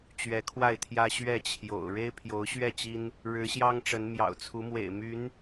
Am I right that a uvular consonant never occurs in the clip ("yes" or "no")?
yes